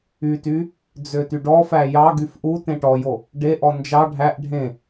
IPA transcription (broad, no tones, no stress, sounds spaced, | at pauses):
y t y | d͡z ø t y ɖ ɔ f æ j ɑ ɡ y f ʔ u t ẽ ʈ ɔ j o | ɖ e ʔ ɔ n d͡ʒ ɑ ɖʱ æ ʔ ɖʱ ẽ